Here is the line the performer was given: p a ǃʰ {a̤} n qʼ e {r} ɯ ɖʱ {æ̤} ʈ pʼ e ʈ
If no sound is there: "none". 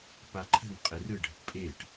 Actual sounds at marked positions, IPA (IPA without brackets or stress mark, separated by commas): ə̤, r, ə̤